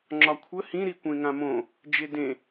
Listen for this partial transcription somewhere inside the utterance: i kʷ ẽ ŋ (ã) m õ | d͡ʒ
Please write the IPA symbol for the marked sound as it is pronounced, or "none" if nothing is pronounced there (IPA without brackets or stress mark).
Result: ã